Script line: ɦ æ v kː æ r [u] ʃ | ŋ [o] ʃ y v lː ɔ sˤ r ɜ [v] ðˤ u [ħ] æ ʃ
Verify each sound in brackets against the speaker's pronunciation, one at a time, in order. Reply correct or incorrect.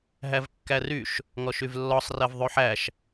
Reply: incorrect: y, incorrect: ɔ, correct, correct

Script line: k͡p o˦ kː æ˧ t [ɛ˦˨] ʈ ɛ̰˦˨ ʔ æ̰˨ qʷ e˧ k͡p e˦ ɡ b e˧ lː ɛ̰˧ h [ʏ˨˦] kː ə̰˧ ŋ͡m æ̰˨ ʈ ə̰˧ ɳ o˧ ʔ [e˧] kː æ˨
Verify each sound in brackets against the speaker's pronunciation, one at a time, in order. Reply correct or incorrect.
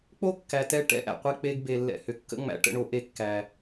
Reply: correct, correct, correct

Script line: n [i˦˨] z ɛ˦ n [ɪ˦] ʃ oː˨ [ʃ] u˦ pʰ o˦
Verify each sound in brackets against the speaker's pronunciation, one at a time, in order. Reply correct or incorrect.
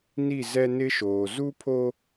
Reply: correct, correct, incorrect: z

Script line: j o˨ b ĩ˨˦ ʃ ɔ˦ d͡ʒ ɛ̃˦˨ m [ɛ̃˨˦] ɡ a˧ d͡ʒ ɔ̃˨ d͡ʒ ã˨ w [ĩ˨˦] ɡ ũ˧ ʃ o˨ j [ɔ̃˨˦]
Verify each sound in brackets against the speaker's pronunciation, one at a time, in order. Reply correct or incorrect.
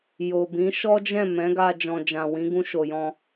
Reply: correct, correct, incorrect: ɔ̃˧

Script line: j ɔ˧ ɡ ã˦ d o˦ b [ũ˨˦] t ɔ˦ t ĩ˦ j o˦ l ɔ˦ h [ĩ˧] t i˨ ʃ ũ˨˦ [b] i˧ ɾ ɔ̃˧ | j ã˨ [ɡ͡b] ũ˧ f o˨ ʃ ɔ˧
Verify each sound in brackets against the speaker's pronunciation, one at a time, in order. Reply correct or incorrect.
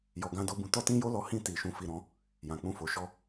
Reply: incorrect: ũ˧, incorrect: ĩ˦˨, incorrect: f, incorrect: k͡p

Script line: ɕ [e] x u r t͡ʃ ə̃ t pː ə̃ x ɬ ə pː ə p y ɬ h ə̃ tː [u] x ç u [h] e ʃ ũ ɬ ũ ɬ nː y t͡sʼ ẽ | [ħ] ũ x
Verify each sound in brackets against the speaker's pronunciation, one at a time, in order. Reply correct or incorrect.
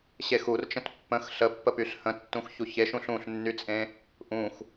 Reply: correct, incorrect: ũ, incorrect: ç, incorrect: ʔ

